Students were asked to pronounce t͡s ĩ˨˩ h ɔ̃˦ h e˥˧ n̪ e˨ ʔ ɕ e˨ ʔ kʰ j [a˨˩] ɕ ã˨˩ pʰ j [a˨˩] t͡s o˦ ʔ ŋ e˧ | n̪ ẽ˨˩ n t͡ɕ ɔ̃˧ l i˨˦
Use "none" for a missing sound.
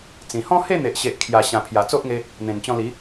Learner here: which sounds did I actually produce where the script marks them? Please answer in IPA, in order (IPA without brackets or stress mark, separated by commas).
a˨˩, a˨˩